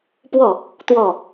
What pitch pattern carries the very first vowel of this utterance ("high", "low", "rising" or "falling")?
falling